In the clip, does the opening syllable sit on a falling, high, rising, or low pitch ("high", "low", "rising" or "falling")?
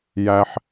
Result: high